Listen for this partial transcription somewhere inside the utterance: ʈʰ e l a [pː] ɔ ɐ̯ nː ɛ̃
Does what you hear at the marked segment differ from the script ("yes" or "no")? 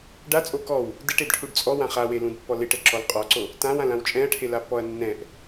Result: no